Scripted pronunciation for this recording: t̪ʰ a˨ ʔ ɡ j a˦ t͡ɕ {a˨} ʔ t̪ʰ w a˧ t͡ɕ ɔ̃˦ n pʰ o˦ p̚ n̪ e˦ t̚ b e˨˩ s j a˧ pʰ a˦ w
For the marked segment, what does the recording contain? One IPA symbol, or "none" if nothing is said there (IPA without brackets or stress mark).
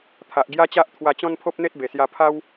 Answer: a˦